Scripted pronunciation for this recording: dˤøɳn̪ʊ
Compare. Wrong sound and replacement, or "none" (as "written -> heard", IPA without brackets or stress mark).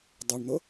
none